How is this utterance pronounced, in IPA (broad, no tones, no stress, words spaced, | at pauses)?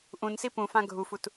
ʔũn sipũfã ɡʱufut